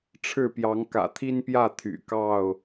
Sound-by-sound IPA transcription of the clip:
ʈ͡ʂʰ ɻ̩˥˨ p j ɑ˨˦ ŋ k ä̰˨˩ t̪ʰ i˦ n p j ä˥˨ t̪ʰ y̰˨˩ k ɑ˥˨ ʊ̯

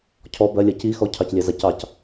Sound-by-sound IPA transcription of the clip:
cʰ ɔ b ɜ lʲ ɜ c i x ɔ cʰ ɑ c lʲ ɛ z a c ɑ c

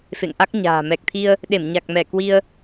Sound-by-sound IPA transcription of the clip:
f ḛ˧˨ ŋ ʔ a˦˥ k̚ ɲ a̤ː˨˩ m ɛ˨˩ k̚ t̪ʰ i˧ ə̯ | ɗ e˧˩ m ɲ a˨˩ k̚ m ɛ˧˩ k w i˧ ə̯

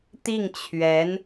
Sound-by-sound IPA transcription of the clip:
t̪ i˥˩ ŋ t͡ɕʰ ɥ ɛ˧˥ n

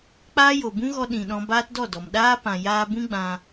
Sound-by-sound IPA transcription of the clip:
k͡p aː˦ j o˨ b ũ˦ ɣ ɔ˧ ɗ ĩ˨ ɗ ɔ̃˧ b aː˦ t d ɔ˦˨ d ɔ˨ m ɗ aː˦ p ã˨ j aː˧ b ũ˦ ɡ͡b ã˧

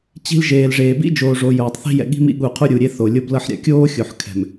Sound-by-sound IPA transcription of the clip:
t͡ɕ i̤˦ l ʒ eː˨ l ʐ eː˨ b ḭ˦ d͡ʒ oː˨ ʐ o˨ j oː˨ tˤ θ i̤˦ j ɛ̰˨ ɠ i̤˦ m ḭ˦ ɠ u˨ qʰ u˦ ɾʲ u˨ ɾʲ e˦ θ o˨ lʲ o˦ b l ɤ˦ ħ ɾʲ a̰˨ kʲ oː˦ xʲ o˨ ħ kʰ ɛ̤˨ m

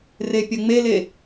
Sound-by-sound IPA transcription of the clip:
r e pʲ ɐ ŋ͡m e l e

